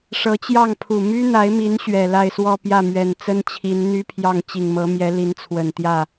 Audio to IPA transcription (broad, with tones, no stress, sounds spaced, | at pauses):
ʂ ɤ˧˥ t͡ɕ j ɑ˥˩ ŋ pʰ u˨˩ m y˥ n̪ a˧˥ ɪ̯ m i˧˥ n ɕ ɥ ɛ˨˩ l a˥˧ ɪ̯ s w ɔ˥˧ p j ä˥˩ m ɥ ɛ˨˩ n t͡s ə˥ n t͡ɕʰ i˧˥ n n̪ y˥ pʰ j ɑ˥˩ ŋ t͡ɕ i˨˩ ŋ m ɤ˧˥ m j ɛ˧˥ l i˧˥ n t͡sʰ w ə˨˩ n t̪ j ä˥˩